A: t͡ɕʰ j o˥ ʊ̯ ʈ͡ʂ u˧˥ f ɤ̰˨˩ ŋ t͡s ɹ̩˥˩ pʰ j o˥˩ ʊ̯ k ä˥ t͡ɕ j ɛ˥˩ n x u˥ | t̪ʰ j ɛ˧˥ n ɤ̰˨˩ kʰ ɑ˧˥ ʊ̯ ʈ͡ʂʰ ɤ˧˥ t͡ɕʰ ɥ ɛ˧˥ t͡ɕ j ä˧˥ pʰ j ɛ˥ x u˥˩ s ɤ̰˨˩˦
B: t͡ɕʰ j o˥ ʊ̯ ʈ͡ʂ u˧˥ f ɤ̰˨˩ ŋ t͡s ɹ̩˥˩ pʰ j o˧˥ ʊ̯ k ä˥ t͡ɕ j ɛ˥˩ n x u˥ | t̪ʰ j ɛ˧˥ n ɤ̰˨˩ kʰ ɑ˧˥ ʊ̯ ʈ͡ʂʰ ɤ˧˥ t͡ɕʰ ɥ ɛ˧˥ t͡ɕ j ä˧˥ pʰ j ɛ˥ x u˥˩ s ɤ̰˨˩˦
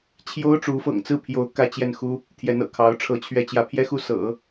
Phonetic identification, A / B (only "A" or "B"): B